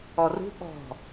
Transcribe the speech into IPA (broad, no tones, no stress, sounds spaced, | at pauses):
ɔ r ṳ ɓ ɔ̤